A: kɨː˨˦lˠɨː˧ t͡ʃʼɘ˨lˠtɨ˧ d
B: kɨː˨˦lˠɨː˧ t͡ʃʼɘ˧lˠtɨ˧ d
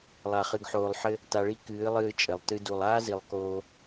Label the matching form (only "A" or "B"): A